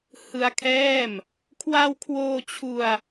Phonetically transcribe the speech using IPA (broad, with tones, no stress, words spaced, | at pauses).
hɯ˧a̯kʰɛː˥˩m | kʰwa˧wkʰwoː˧ t͡ɕʰu˧a̯